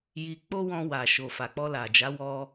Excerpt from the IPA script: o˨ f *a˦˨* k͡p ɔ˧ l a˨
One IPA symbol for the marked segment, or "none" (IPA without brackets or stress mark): a˨